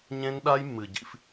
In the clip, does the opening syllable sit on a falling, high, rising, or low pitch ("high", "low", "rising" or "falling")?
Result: high